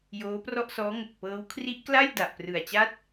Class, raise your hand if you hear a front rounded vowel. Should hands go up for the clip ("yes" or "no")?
no